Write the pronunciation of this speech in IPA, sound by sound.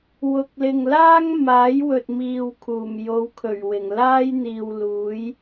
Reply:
w ʊ˨ k̚ l ɪ˨ ŋ l aː˥ ŋ m aː˨˥ j w ɵ˨ t̚ m iː˨ w kʰ uː˨˩ m j o˨˧ w kʰ ɵ˨˩ ɥ w ɪ˨˩ ŋ l aː˥ j n̪ iː˨ w l uː˨˥ j

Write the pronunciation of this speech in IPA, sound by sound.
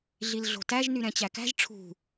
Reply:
ɮ i l ɮ o̤ t æ ʒ n y ɾ ɛ̃ t͡ɕ æ k æ̤ ʒ ʈ͡ʂʰ ṳ

